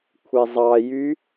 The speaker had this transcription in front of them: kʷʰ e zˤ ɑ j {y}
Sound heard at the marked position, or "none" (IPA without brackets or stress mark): y